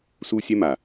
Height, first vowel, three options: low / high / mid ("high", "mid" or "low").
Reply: high